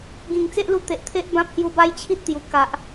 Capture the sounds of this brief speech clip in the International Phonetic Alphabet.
ɡ ĩ˨˩ ŋ t͡s e˦ ʔ l u˧ t̪ e˨ ʔ t̪ʰ e˦ ʔ b ã˦ p̚ h j u˧ b a˦ j t͡ɕʰ i˦ t̚ t̪ j u˨˩ k a˨ ʔ

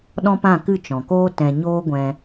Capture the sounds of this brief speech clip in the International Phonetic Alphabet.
ɗ ɔ̃˦ p ã˦˨ k ɨ˦˨ t͡ʃ ɔ̃˨ k oː˦ t ɛ̃˧ ɲ oː˦ ɡʷ ɛ̃˧

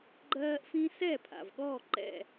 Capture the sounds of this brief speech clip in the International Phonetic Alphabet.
ɡ͡ǃ ɜː˦ ʔ f ĩ˦ s ɛ˥˨ pʰ a̰˨˩ v ɠ ɔː˥˨ ǃ ɛ̰˥˨

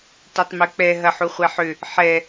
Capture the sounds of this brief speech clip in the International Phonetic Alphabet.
t ɛ tˤ m ø k͡p ɛ ɦ ɐ ħ u χʷ ɛ ħ ʏ | ħ ɛ

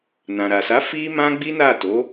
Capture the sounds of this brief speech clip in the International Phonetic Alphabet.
n ã˨ ɾ a˨ s a˨˦ f i˦ m ã˦ ɡ͡b i˦ n a˦˨ t o˨˦

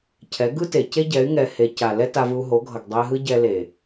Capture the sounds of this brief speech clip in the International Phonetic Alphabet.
cʰ ɛ˨˦ ɡ ɯ˦ t e˨ c e˦ ɟ ɛ˨˦ y̯ ŋ ɛ˧ h e˧ c a˨ l ɛ˦ t a˧ v ɯ˧ u̯ ɦ o˨˦ ɡʱ ʌ˨ ɡ dˤ e˧ ɦ ɯ˦ ɟ ɛ˧ l e˨

